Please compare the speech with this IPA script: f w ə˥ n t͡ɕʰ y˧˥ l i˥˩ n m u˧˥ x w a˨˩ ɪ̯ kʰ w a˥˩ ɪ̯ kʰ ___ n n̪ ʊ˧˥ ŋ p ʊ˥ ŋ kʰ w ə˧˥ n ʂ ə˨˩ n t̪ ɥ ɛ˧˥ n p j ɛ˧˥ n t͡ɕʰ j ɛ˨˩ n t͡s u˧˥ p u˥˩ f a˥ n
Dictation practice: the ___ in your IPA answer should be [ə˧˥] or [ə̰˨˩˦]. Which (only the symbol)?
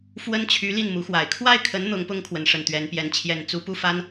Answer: ə˧˥